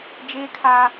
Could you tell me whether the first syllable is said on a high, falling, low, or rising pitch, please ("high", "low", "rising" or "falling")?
high